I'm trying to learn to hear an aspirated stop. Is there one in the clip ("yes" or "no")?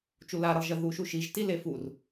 no